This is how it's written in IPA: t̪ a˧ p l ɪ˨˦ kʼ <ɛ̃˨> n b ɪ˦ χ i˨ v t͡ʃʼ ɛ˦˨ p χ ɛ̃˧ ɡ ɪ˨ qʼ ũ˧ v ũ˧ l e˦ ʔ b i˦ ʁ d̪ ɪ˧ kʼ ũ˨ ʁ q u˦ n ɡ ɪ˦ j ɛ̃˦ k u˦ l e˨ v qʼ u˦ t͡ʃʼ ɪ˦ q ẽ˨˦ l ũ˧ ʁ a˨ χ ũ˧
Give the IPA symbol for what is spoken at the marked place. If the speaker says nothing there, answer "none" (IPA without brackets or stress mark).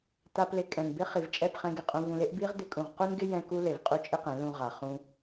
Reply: ɛ̃˨